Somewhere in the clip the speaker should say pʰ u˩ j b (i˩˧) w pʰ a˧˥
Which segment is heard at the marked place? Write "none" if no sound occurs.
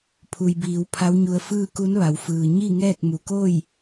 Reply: iː˩˧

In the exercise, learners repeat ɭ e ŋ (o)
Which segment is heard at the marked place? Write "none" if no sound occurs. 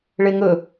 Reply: ɵ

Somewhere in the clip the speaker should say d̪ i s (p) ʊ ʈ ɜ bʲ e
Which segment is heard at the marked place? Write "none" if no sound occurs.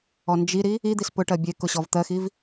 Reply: p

